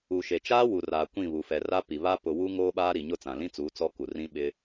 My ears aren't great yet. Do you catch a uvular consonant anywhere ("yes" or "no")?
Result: no